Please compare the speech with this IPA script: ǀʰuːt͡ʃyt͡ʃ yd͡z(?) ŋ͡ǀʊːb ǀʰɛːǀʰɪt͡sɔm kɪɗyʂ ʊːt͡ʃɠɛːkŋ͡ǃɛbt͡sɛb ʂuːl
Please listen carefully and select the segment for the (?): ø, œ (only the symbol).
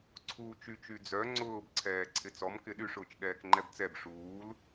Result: œ